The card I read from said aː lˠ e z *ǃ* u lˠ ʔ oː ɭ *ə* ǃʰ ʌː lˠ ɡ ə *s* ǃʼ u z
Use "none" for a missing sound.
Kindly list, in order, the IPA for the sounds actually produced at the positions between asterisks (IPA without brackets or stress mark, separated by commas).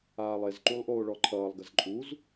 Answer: ǃ, ɔ, z